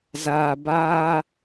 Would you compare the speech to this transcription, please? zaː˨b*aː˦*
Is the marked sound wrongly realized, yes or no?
no